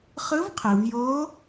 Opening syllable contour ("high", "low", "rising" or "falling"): rising